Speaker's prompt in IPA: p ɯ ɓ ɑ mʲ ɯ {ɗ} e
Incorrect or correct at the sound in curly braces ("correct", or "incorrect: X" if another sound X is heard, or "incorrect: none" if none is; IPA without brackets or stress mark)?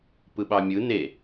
incorrect: n